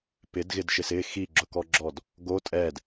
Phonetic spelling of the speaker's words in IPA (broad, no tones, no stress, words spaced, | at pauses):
pɪdɣɪdʃɪs ɪ xiɡ͡ǁʊkɔɡ͡ǁɔd | ɡo tʼɛd